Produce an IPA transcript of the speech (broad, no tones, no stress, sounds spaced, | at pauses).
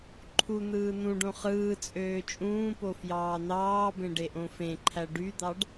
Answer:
ǃʰ u n̪ ɯː n̪ ũ ɖ õ χ ɯː t͡sʼ øː t͡ʃʼ ũː p o f j ɑː n̪ ɑː b ẽ ɖ e ʔ õ f ẽ ǃʰ æ ɖ y d̪ ɑ ɖ